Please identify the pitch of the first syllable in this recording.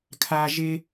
high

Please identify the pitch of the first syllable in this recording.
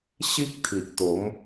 high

